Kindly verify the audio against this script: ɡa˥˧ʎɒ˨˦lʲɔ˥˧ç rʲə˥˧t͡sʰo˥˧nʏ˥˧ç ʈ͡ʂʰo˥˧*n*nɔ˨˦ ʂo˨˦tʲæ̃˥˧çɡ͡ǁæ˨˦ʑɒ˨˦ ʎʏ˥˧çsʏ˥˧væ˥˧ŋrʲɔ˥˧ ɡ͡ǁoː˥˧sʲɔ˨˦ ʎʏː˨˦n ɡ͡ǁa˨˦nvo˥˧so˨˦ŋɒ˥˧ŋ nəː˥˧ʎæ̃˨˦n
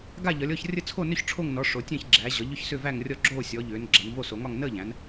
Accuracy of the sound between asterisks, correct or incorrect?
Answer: incorrect